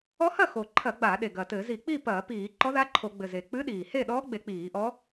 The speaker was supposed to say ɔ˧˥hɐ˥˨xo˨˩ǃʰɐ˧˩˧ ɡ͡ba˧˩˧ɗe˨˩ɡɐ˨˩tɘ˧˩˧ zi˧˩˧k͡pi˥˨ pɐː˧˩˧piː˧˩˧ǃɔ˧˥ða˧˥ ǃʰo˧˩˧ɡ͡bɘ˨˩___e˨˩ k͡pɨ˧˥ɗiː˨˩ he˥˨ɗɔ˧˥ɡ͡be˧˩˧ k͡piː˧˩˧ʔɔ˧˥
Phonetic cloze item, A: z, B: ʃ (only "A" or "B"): A